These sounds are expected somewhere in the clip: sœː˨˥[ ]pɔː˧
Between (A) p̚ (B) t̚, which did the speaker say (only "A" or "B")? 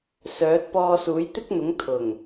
B